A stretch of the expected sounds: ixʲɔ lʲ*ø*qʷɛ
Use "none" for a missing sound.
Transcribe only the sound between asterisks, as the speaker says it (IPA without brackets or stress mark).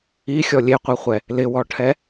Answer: e